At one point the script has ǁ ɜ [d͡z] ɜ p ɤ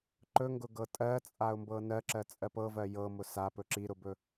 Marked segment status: incorrect: t͡sʼ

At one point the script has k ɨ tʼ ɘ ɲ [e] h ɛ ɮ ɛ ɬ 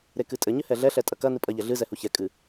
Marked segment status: incorrect: ɘ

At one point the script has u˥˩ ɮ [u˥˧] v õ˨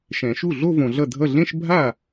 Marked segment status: incorrect: o˥˧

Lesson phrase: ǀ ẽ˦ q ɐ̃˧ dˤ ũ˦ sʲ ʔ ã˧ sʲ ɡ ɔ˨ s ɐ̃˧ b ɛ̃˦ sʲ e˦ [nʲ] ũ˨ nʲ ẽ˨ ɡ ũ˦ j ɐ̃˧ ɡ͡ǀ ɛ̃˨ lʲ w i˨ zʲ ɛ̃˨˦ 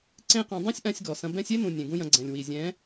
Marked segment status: incorrect: n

